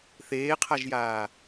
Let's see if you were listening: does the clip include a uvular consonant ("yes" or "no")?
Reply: yes